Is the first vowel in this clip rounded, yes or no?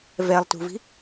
no